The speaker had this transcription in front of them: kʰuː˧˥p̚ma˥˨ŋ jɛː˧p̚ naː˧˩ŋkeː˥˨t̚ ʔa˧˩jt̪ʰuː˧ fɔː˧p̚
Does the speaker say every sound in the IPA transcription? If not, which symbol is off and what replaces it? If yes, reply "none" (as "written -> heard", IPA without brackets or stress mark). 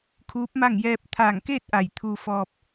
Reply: n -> t̪ʰ